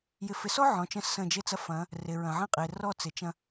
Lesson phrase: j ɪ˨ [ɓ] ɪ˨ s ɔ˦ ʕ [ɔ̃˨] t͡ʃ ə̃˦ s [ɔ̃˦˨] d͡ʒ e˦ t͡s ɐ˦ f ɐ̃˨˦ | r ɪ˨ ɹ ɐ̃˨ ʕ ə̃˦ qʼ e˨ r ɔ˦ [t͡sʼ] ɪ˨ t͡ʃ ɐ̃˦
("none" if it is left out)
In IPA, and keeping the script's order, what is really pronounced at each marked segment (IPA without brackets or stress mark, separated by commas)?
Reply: f, ɔ̃˨, ə̃˦˨, t͡s